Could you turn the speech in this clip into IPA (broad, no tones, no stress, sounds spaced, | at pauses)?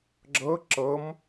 ɡ͡ǁ ɤ ǁ ɤ m